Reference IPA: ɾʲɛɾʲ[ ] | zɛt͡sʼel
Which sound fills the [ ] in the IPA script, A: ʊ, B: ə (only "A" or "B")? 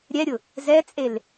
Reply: A